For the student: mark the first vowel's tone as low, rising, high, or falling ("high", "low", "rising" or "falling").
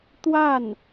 falling